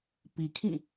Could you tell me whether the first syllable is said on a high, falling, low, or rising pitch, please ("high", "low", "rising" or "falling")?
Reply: low